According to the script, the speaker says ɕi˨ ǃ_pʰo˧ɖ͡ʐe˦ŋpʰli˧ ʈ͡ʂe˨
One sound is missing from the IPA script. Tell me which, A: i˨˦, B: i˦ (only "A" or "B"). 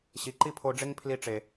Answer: B